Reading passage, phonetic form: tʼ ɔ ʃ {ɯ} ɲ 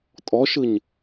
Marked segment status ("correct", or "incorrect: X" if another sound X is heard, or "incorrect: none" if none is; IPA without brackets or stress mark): correct